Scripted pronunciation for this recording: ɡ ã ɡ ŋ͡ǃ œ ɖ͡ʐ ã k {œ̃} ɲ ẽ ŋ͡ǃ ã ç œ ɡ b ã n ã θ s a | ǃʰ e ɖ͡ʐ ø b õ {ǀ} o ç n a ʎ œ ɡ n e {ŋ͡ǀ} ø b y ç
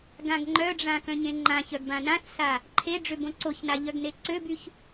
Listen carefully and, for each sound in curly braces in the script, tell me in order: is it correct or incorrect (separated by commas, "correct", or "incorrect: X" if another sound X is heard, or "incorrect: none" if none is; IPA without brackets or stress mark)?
correct, correct, incorrect: ǀ